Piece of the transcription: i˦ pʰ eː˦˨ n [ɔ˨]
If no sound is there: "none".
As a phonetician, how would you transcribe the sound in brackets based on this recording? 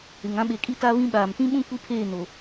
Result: o˨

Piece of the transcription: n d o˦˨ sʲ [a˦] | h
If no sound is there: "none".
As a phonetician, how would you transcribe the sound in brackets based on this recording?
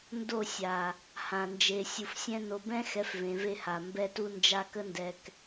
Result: a˨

